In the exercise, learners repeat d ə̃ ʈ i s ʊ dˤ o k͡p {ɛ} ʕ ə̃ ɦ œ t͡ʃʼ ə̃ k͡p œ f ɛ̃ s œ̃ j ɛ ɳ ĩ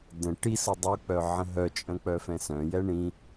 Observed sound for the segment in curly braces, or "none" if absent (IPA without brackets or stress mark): œ